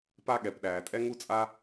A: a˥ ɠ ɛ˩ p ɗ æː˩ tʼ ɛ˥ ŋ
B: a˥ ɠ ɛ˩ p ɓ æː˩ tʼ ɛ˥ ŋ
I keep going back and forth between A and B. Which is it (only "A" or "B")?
A